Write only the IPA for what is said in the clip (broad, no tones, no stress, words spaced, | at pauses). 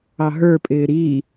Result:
ɑɦə˞pʼɪː ɾi